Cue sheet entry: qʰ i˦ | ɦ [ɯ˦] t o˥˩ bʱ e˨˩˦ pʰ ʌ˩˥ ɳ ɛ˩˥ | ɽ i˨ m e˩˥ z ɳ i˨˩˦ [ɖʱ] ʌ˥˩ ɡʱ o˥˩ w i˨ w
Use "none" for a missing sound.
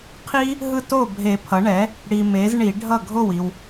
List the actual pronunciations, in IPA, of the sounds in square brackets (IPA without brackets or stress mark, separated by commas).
ɯ˦, ɖʱ